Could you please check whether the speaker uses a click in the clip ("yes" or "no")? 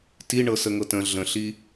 no